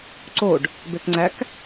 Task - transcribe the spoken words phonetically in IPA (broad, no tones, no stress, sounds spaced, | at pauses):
ǀ o ɖ | b e k ŋ͡ǀ æ k